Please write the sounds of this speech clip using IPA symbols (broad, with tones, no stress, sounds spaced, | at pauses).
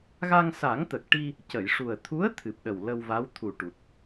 ɣ a˧ ŋ s a˨˩˦ ŋ t̪ ə˨˩ k̚ ʈ i˧ | c ə˨˩˨ j ʂ u˨˩ ə̯ t̪ʰ u˧˥ ə̯ t̪ʰ ɨ˨˩ p̚ ɗ ə˨˩ w l ə˧ w v a˧˥ w t̪ʰ u˨˩ ʈ u˨˩ t̚